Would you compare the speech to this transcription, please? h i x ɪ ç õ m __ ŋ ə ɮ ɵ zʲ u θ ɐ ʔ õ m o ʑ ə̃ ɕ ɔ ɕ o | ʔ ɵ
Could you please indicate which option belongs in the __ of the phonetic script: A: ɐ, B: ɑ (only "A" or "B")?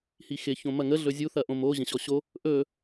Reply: A